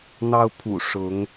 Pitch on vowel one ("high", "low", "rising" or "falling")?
high